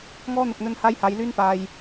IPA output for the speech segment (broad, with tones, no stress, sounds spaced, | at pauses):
ŋ ɔː˥ n̪ ʊ˨ k̚ n̪ ɵ˧ n h aː˥ j h aː˨˧ j l yː˥ n p aː˨ j